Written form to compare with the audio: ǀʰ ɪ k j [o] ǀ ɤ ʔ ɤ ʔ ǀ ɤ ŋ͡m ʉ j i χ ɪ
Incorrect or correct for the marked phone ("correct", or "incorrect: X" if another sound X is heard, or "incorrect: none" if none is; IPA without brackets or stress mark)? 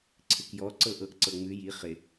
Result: incorrect: ɔ